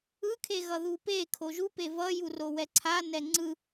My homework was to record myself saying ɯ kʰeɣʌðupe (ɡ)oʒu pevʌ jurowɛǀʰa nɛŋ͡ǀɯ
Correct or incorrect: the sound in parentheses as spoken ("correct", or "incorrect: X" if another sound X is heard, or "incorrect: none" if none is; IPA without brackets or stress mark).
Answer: incorrect: kʰ